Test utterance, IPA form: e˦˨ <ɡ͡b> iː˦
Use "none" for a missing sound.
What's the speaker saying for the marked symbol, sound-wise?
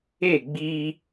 ɡ͡b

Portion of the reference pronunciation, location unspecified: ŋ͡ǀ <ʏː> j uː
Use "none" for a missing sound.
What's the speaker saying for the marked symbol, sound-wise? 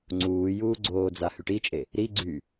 uː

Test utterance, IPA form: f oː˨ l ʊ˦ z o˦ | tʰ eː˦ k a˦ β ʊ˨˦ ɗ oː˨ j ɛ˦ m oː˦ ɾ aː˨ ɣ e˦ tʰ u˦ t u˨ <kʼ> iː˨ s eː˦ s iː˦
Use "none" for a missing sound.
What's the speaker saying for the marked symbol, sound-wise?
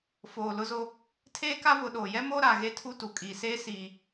kʼ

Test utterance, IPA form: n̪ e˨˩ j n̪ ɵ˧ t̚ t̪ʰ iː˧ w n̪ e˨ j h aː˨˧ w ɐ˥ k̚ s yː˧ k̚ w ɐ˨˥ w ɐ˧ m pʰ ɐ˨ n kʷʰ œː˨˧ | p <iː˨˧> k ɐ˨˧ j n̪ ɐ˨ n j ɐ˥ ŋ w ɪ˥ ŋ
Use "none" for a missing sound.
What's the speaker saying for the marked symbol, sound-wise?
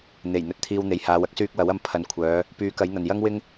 yː˨˧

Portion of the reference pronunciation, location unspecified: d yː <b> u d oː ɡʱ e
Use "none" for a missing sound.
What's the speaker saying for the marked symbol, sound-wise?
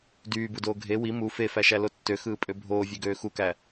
b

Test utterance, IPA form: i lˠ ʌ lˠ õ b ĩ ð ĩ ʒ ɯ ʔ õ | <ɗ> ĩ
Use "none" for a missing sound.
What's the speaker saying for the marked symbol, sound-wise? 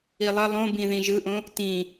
t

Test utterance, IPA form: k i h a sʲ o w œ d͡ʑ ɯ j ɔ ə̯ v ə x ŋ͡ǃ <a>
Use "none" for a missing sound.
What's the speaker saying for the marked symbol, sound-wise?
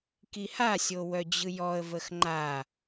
a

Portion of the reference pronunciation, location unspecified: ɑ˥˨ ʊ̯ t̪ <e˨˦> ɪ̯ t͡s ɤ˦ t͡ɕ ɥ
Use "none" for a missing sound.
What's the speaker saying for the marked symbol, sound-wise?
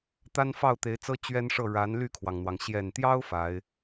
e˨˦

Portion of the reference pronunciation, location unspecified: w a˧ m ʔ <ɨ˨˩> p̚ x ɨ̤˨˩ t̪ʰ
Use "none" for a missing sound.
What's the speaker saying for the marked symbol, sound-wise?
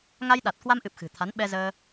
ɨ˨˩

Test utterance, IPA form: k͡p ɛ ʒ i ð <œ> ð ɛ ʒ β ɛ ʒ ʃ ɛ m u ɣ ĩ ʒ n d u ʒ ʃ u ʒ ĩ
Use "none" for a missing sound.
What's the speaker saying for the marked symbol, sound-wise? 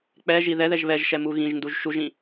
ɛ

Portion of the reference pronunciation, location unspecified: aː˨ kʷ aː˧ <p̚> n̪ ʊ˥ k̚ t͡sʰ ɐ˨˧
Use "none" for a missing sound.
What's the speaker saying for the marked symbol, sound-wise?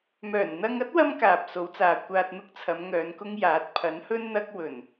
t̚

